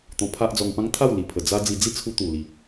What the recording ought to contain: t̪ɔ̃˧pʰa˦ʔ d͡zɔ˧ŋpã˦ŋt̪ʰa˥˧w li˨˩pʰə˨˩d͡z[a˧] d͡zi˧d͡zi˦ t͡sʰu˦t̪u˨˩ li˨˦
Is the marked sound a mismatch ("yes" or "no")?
yes